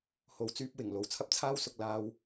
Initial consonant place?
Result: glottal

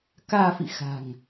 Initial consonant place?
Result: velar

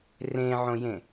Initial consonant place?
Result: alveolar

